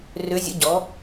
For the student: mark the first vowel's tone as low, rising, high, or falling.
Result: rising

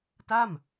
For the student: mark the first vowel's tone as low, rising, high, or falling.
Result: falling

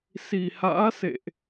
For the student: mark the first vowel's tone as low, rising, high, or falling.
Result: low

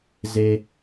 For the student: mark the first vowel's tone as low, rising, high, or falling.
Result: high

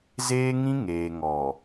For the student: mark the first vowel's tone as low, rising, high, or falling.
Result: high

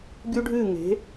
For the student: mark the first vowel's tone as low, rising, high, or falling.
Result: high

